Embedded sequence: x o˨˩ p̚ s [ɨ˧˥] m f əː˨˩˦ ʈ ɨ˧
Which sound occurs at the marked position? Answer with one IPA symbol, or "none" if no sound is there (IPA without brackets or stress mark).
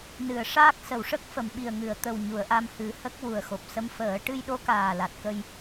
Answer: ə˧˥